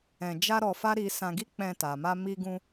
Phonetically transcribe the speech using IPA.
ɛ̃˧ d͡ʒ a˦ ɾ ɔ˧ f a˦ ɾ i˧ s ã˧ ɡ i˦ k͡p ɛ̃˧ t a˨ m a˧ m i˧ ɡ ũ˧

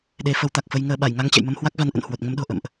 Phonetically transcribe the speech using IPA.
ɗ e˨˦ f ə˨˦ w t̪ a˨˩ k̚ f ə˧ j ŋ əː˧ ɓ a˧˩ j ŋ a˧ ŋ t͡ɕ ɛ̰˧˨ j m ə˧ m h w a˦˥ k̚ v a˨˦ n ʔ ə̰˧˨ n h w o˨˩ t̚ ŋ ə˧ m ɗ o̤˨˩ ʔ ə̰˧˨ m ʔ

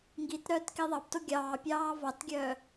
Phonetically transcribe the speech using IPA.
ŋ ɡ i t ɾ œː t k i ðˤ ɑ p t o ɡʲ ɑː pʲ ɑː v ɑ t ɡʲ œː

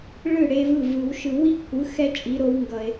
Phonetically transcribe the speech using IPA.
ɭ ɯ˥˩ ɽ e˦˥ v ɯ˥˩ v ɯ˨˩˦ w ʃ ɯ˨˩˦ w i˦˥ kʷʰ ɯ˩˥ x ɛ˦˥ t͡ʃʼ i˩˥ ɾ o˩˥ w ŋ ɡ ʌ˩ e̯

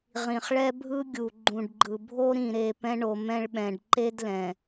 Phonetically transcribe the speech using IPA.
ʁ ĩ˨ χ ɭ ɛ˦ bʱ ɯ˦ ɡʲ u˨ ɡ͡ǃ ũ˨ ɖ ɡ͡ǃ ɯ˨ bʱ o˦ ɾ ĩ˦˨ ɾ e˦˨ p ɛ̃˦ ɳ o˨ m ɛ̃˦ ɭ ɓ ɛ̃˨ ɖ ǃ e˦ d l ɛ̃˨

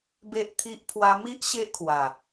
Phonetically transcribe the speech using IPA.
b e˦ ʔ t̪ʰ i˦ ʔ pʰ w a˧ m i˦ ʔ ɕ e˦ ʔ kʰ w a˨˩

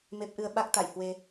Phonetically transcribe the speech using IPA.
m e˦˥ p̚ ʔ ɨ˧ ə̯ ɓ a˦˥ k̚ t̪ a̰˧˨ j h w e˧

